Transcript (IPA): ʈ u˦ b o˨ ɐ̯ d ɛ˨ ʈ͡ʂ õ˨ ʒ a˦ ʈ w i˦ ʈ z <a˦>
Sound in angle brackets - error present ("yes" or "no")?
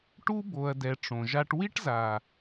yes